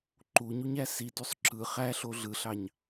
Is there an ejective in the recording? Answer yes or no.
no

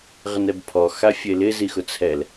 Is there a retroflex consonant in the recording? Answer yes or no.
no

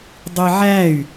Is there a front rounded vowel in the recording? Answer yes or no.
yes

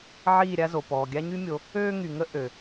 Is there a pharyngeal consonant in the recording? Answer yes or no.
yes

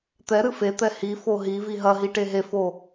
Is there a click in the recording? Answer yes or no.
no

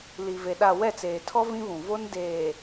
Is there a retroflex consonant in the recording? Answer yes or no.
no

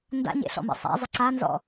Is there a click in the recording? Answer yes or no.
yes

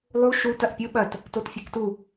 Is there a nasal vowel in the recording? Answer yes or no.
no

